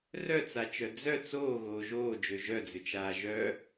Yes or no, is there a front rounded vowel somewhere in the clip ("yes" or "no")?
yes